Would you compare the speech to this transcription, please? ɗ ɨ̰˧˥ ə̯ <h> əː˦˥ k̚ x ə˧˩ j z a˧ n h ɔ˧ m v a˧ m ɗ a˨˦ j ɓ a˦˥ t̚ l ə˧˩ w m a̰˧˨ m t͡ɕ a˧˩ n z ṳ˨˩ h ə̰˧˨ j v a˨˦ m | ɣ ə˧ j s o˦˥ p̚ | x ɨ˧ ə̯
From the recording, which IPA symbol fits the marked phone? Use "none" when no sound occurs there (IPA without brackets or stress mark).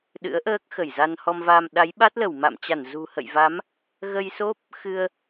ʔ